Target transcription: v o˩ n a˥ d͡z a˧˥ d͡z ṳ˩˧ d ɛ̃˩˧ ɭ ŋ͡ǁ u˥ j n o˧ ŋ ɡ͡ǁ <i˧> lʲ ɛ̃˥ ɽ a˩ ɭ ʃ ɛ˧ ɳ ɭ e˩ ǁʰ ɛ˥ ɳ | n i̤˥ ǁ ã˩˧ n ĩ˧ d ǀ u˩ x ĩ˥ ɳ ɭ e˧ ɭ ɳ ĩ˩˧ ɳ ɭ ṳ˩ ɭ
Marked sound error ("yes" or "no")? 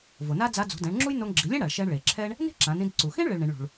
yes